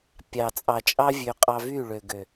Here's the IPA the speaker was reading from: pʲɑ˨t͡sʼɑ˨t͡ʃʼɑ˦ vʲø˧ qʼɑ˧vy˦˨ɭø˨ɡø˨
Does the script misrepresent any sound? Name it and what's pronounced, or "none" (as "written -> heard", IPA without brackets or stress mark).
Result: none